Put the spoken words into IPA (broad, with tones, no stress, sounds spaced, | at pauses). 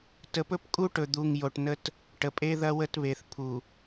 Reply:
t ə˨ p ɵ˦ p kʼ u˦ ʈ ɵ˨ d̪ u˨ ŋ j o˨ ʈ n ə˦ t | ʈ ə˨ pʼ e˦ ð ɐ˦ w ə˦ t β e˨ θ pʰ u˨